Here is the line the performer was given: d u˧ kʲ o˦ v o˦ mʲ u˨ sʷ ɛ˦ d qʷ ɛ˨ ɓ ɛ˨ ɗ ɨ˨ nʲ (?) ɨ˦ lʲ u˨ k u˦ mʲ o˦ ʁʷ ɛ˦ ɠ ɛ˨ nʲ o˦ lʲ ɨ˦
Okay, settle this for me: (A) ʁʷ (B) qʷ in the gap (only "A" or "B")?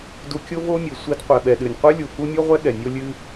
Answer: B